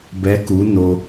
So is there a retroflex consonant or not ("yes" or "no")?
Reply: no